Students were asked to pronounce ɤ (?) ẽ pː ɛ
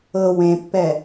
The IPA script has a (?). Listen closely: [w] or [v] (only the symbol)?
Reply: w